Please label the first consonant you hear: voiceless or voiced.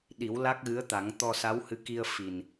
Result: voiced